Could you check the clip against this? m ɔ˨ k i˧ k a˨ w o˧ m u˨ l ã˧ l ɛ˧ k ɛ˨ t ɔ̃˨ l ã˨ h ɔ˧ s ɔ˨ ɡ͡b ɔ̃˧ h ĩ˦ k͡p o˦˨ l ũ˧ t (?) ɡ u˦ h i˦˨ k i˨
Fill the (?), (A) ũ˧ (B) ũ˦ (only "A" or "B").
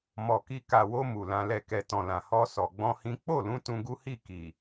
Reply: A